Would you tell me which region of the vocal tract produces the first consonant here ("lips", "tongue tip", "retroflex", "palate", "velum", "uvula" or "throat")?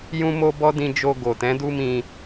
palate